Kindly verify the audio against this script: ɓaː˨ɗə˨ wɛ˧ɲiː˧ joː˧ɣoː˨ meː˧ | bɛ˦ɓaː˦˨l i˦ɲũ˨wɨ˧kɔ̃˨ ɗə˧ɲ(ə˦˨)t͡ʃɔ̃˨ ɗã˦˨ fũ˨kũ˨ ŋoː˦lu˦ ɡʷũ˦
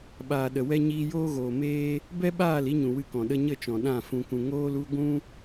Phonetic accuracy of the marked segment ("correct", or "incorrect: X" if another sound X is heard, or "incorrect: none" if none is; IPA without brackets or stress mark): correct